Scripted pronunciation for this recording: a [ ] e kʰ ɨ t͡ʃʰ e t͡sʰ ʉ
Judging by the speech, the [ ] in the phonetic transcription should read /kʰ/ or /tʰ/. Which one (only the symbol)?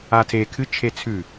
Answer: tʰ